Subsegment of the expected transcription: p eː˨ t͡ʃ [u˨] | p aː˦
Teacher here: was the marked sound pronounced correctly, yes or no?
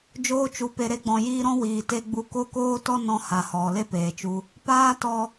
no